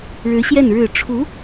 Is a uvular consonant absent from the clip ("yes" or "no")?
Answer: yes